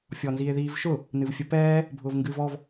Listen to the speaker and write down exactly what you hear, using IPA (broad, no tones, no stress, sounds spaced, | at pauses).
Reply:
fʲ ɔ n z i e̯ ð iː v ʃ ʊ | n ɨ v fʲ ə p ɛː | bʱ ʊː v ŋ ɡ ɨː v ɔ v